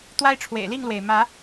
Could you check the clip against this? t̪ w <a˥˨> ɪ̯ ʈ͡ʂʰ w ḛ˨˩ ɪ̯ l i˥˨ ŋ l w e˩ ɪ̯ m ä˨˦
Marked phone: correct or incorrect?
incorrect